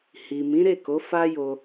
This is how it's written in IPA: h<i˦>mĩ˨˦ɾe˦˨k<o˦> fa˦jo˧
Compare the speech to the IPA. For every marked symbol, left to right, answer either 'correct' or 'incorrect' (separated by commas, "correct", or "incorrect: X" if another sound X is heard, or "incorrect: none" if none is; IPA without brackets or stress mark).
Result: incorrect: i˨, incorrect: o˨˦